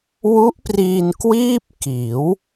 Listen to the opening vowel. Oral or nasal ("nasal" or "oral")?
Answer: oral